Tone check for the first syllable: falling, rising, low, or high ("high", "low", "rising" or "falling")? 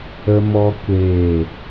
high